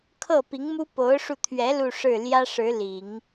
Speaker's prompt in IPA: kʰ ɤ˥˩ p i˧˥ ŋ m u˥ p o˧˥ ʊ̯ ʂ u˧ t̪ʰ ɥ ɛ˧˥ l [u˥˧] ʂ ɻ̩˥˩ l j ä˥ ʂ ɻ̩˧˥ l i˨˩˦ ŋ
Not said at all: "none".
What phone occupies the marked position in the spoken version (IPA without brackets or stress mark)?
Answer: u˥˧